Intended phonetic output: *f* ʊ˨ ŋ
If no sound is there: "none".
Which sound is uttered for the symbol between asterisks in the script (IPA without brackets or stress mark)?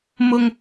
m